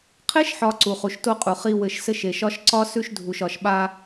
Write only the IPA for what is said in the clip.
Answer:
qʰ e˦ ʃ ħ ɒ˨ ǀ u˨ χ u˨ ʃ t o˦ qʼ u˨ χ i˨ w ɘ˨ ʃ s ɘ˦ ʃ e˨ ʃ ɒ˦ ʃ ǀ ɒ˦ s ʉ˦ ʃ dʱ u˨ ʃ ɒ˨ ʃ ɓ a˦

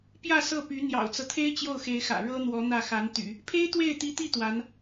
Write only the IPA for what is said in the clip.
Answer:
p j ä˥˧ s ɤ˥˩ p y˧˥ n̪ j ɑ̰˨˩ ʊ̯ t͡s ɤ˦ t̪ʰ e˥ ɪ̯ t͡ɕ j o˥˩ ʊ̯ x e˧˥ ɪ̯ x ä̰˨˩ ɻ ɤ˥ n̪ w ɔ˧˥ n̪ ä˥˩ x a˧˥ n t̪ y̰˨˩˦ | pʰ e˥ ɪ̯ t̪ w e˥˩ ɪ̯ t̪ i˧˥ t̪ i˥˩ t̪ w a˧˥ n

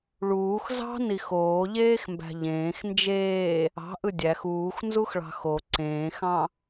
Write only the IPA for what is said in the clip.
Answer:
ɭ uː x z ɑ̤ n i x oː ʎ eː x m b æ̤ ʎ ẽː x n d͡ʒ eː | ɑ̤ ʔ ɯ dʲ æ x uː x n z u x ɭ ɑ̤ x o ǀ ẽː x ɑ̃

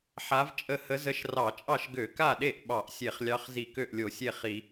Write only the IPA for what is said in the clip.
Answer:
ħ a˧˥ v t͡ʃʼ ə˥˩ h ə˧˥ z ə˧˥ ʃ r ɑ˧˩˧ t͡ʃʼ ɑ˥˩ ʃ ɡ ø˧˩˧ k a˥˩ ɗ e˥˩ ʔ ɓ ɑ˧˩˧ ʔ sʲ e˧˩˧ χ lʲ ɑ˧˥ χ z i˧˩˧ k ø˥˩ ʔ lʲ o˧˩˧ sʲ e˥˩ χ i˧˩˧

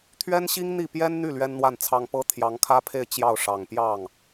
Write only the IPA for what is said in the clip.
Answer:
t̪ʰ ɥ ɛ˥ n ɕ i˥ ŋ n̪ i˥˩ p j ɛ˥ n n̪ y˥˩ l ɥ ɛ˥ n n̪ w a˥˩ n t͡sʰ ɑ˥ ŋ p ɤ˥ t̪ʰ j ɑ˧˥ ŋ kʰ ä˥ pʰ e˥˧ ɪ̯ t͡ɕ j ɑ˥˩ ʊ̯ ʂ ɑ˨˩ ŋ p j ɑ˥˩ ŋ

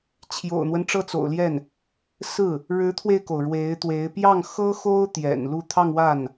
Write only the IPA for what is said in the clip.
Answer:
t͡ɕʰ j o̰˨˩ ʊ̯ n̪ w ə˦ n ʈ͡ʂ ɤ˥˩ t͡s o̰˨˩ ʊ̯ l j ɛ˥˩ n | s ɹ̩˥˩ | ɻ ɻ̩˧˥ t̪ʰ w e˧ ɪ̯ k o˩ ʊ̯ ɻ w e˧˥ ɪ̯ t̪ w e˧˥ ɪ̯ p j ɑ˥˩ ŋ x ɤ˥ x o˥ ʊ̯ t̪ j ɛ̰˨˩ n l u˥˧ t̪ʰ ɑ˥˧ ŋ w a˥˩ n

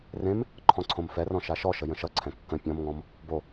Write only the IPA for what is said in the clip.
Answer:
r ẽ m | ǃʰ ɔ̃ ǀʰ õ m f ɛ r ɔ̃ ʃ a ʃ ɔ ʃ ə j ə̃ ʃ ʌ ǀʰ ɛ̃ kː ə̃ pʲ ɔ̃ m ŋ ɔ̃ m | b o

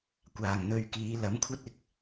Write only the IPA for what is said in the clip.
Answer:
kʷ aː˨˩ ŋ n̪ ɵ˧ ɥ k iː˨˧ l ɐ˨˥ m kʷʰ ɐ˥ t̚ ɪ˨˥ k̚

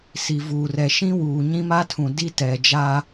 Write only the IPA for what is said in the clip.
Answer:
s i˨ v uː˨ r ɛ˨ ʃ ĩ˦ w uː˨ ɲ ĩ˦ m a˦ tʰ ũ˨ d i˦ t ɛ˨ d͡ʒ a˦

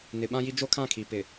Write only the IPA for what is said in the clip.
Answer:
n ɪ˨ ɓ ã˦ j i˦ d͡ʒ o˦ kʰ ã˦˨ kʰ i˨ p ɪ˨

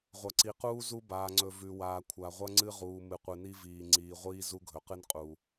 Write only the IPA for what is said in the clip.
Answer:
ʁʷ ɐ˨ ǀ i˨ q uː˦ z u˦ b aː˨ ŋ͡ǀ ɵ˨ v ʉ˨ w aː˨ kʷʰ a˨ ʁʷ ɐ˦ ŋ͡ǀ ɨ˦ ʁ uː˨ m ɨ˨ qʷ ɨ˨ n i˦ v iː˨ ŋ͡ǀ iː˨ ʁʷ iː˦ z u˦ ɡʱ ɵ˨ q ɨ˦ n qʼ u˨

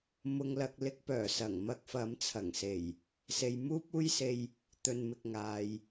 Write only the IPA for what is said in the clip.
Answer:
m ʊ˧ ŋ l ɐ˧ k̚ l ɪ˧ k̚ p œː˨˩ s ɐ˨˩ ŋ m ɐ˧ k̚ f ɐ˨˧ m t͡sʰ ɐ˨˩ ŋ s e˨˩ j | s e˨ j m uː˥ p̚ uː˥ j s e˧ j | t̪ ɵ˨ n m ɪ˨ k̚ ŋ aː˨ j

